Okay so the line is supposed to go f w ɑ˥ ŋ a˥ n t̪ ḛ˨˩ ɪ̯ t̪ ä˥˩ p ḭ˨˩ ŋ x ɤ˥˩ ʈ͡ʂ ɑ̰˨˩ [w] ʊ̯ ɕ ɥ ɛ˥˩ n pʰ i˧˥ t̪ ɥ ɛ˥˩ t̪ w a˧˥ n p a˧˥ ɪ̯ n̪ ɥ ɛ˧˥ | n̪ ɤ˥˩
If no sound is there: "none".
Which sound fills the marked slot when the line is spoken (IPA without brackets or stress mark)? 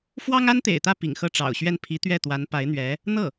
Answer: none